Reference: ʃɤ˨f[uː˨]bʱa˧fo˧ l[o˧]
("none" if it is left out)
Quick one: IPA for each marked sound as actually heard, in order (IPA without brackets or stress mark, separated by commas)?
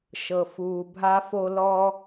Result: uː˨, ɔ˧